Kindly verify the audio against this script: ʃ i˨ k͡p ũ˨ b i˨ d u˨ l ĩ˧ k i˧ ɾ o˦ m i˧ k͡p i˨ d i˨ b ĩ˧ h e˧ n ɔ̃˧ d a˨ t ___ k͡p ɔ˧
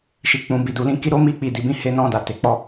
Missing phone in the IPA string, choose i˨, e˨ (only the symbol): e˨